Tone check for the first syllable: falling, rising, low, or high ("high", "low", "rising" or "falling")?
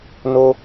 high